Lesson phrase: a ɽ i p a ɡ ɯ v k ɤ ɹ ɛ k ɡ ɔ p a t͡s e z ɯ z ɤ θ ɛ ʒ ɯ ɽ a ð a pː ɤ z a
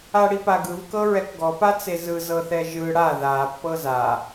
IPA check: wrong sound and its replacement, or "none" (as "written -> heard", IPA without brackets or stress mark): none